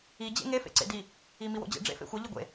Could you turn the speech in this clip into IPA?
i d͡ʑ ḛ ŋ e f ḛ ǀ ḛ d i | i m i w o̰ d͡ʑ ḛ ɖ͡ʐ ḛ f ḛ xʷ ɐ ʎ i ɡʷ ḛ

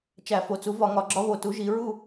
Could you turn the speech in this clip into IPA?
t͡ʃ æ˧˩˧ f o˩˥ t͡s u˩˥ v ɒ˧˩˧ ŋ ɒ˧˩˧ ɡ͡ǁ ɒ˧˥ β o˩˧ t u˩˥ ʒ i˩˧ ɹ u˥˧

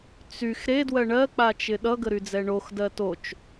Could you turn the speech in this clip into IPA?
t͡s y x ɾ e d w ɜ ɳ ɜ k͡p a t͡ʃ ɪ ɗ ʌ ɡ ə ɾ y d͡z ɛ ɳ o x d ɜ t o t͡ʃ

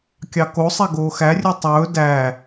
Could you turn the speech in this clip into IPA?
kʲ ɑ k o sˤ ɛ ɡ oː x æ rʲ ø tˤ ɵː d æ

